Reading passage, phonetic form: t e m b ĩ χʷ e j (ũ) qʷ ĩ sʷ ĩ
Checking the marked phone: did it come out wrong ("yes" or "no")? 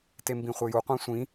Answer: yes